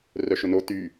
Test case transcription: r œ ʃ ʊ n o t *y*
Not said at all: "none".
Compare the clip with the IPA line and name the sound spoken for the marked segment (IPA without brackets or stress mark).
y